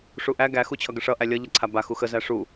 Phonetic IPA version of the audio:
ʂ u ʔ æ ɡ æ x u t͡ɕʰ ʌ ɡ ə ʂ ʌ ʔ æ lʲ ʌ ʎ ʌ ǀʰ a b a x u x ə z æ ʂ u

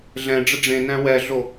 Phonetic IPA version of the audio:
ɮ ɛ̃ ɖ͡ʐ ə ɖ͡ʐ ẽ n æ̃ w ɛ ɮ o

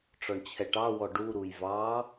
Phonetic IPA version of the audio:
ʈ͡ʂ ɔ ɳ t͡ɕʰ ɛ ʈ ɑ w ɔ ɖ u ɾ u j v ɑ

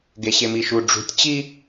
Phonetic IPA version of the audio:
ɡ e ɕ e m i ʃ u ɖ͡ʐ ṳ tʲ t͡ɕ i

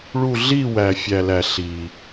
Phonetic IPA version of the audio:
ɭ u˦˨ ɮ i˦˨ w æ˨ fʲ æ˨ l æ˨ ɬ i˨

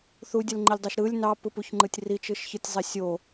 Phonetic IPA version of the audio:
θ u dʲ ɯ l ŋ͡ǃ i lʲ dˤ ɯ ʃ ɾ ɯ lʲ n ɑ p ɯ p u ç ŋ͡ǃ ɯ tʲ r i t͡ʃ ɯ ʃ ç ɯ tʲ zˤ i sʲ o

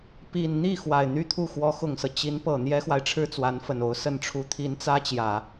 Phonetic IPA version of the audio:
p i˨˩ n n̪ i˥˩ x w a˨˩ ɪ̯ n̪ y˥˧ t̪ʰ u˥˩ x w ɔ˧˥ x ʊ˨˩ ŋ s ɤ˦ t͡ɕ i˧˥ n p ɤ˨˩ n̪ j ɛ˥ x w a˨ ɪ̯ ʈ͡ʂʰ ɻ̩˥ t͡s w a˧˥ n f ə˨˩ n o˧˥ ʊ̯ s ə˥˩ n ʈ͡ʂʰ u˧˥ t̪ʰ i˧˥ n t͡s ä˥ t͡ɕ j ä˨˩˦

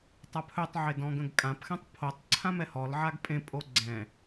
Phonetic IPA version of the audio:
tˤ a pʰ ɵ tˤ ʕ e d ɔ̃ ɡ ə̃ ɡ kʼ ã p x ɛ̃ tˤ pʰ o tˤ ǀʰ ã m ɛ h ɔ l ʕ a ɡ pʼ ẽ pʼ o ɡ͡ǀ ɛ̃

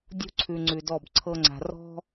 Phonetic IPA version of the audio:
dʲ ṳ˦ ǀʰ ʉ˨ ŋ͡ǀ ʉ˨ d ɔ˦˨ b ǀʰ ɤ˦ ŋ͡ǀ a̤˨ r ɔ̤˦

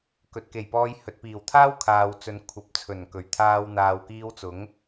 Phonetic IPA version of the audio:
k ɵ˨ t̚ k e˨˩ j p ɔː˧ j h ɵ˨ t̚ p iː˨˩ w t̪ʰ aː˥ w kʰ aː˨ w t͡s ɵ˨ n kʷʰ ɐ˨ p̚ t͡sʰ ɵ˨˩ n k ɵ˨˩ ɥ t̪ʰ aː˧ w n̪ aː˨ w k iː˧ w t͡s ʊ˨˥ ŋ

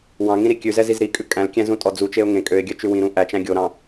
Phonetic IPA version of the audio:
w ɑ̃ ŋ ĩ ɾ i kʲ ʉ z ɛ z i z ɾ i kʼ ʉ kʼ æ̃ l kʲ æ̃ z ũ tʼ ɔ d͡z u t͡ʃ e ʊ̯ ŋ ẽ kʼ ø ɪ̯ ɡʲ œ t͡ʃ ʉ w ĩ ɾ ũ ʔ æ t͡ʃ æ̃ ɡʲ o ɾ ɑ̃

